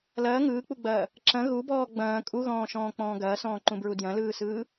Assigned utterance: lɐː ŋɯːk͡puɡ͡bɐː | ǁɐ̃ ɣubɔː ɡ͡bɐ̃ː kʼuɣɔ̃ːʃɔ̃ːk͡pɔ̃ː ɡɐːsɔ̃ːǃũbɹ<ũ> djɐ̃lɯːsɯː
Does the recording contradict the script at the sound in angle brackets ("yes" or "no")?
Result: yes